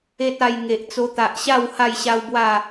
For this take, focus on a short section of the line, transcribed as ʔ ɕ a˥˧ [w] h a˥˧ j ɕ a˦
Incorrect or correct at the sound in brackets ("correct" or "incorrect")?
correct